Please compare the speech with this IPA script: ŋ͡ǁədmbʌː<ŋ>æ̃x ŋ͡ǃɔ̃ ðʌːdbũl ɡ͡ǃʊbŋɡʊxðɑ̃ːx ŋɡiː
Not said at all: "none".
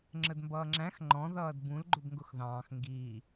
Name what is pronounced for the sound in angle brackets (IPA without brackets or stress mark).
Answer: ŋ͡ǁ